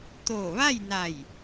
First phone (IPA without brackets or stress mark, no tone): t̪